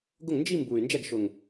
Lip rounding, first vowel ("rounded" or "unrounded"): rounded